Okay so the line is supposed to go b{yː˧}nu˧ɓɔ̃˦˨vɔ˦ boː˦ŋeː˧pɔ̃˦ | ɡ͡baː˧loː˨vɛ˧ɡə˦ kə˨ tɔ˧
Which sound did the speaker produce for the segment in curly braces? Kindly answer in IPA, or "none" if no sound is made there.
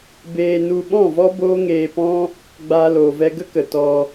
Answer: eː˧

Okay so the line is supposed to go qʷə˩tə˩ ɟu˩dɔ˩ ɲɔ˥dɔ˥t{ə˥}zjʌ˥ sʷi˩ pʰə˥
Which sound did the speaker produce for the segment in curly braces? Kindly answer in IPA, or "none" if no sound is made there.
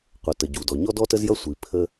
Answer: ə˥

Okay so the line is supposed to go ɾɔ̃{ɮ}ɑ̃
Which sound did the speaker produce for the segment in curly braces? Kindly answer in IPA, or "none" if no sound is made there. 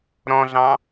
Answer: ɮ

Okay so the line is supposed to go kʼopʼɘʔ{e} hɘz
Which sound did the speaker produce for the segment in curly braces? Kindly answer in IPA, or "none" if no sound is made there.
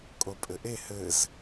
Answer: e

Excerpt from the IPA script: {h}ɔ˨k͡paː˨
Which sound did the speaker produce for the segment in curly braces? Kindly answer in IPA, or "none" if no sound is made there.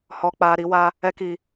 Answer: h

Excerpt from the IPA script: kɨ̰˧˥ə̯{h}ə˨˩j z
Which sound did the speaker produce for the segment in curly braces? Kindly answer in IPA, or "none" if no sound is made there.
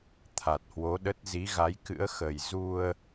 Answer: x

